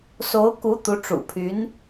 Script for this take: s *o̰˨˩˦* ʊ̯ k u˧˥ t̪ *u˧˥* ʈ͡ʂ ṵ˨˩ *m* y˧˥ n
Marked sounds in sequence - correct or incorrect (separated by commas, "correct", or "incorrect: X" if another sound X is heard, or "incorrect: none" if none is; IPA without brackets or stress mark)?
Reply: incorrect: o˧˥, correct, incorrect: pʰ